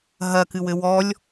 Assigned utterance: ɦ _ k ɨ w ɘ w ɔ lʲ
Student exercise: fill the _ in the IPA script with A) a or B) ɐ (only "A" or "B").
B